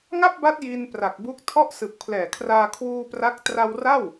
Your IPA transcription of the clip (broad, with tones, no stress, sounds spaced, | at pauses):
ŋ a˥˩ p̚ b a˦˥ t̚ j i˧ n p r a˨˩ k̚ b u˦˥ k̚ tʰ ɔ˥˩ ʔ s ɯ˨˩ k̚ pʰ l ɛː˨˩ kʰ r aː˧ kʰ w uː˧ p r a˦˥ k̚ t r a˧ w r a˥˩ w